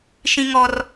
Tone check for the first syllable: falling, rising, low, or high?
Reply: high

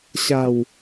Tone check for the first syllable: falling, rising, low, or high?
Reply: low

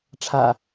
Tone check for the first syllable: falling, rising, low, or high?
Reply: low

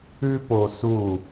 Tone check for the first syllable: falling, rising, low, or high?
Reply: high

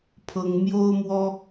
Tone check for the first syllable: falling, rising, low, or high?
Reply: high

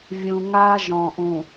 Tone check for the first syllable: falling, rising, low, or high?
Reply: low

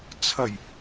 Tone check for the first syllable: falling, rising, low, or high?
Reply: low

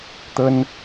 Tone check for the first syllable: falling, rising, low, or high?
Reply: high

